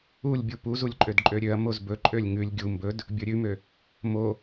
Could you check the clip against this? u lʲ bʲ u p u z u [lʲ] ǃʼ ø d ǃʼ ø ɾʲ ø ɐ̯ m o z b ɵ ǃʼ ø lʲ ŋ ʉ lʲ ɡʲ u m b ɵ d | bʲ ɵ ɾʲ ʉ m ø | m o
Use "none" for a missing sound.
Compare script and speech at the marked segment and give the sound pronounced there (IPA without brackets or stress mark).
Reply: lʲ